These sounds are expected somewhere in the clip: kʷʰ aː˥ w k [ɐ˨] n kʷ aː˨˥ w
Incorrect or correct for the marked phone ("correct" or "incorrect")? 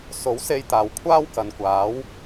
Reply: correct